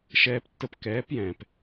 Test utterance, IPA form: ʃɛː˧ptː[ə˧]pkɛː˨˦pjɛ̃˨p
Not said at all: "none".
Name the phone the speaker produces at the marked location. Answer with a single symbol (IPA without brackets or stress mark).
ə˧